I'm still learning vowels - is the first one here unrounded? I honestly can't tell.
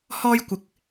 no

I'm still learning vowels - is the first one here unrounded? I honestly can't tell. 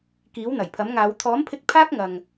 yes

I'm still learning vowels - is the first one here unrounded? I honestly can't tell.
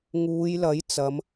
no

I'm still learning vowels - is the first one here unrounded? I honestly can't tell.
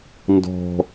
no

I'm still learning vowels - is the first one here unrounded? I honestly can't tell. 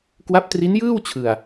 yes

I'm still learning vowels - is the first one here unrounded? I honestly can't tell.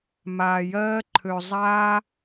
yes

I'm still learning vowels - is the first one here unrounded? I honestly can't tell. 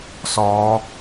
no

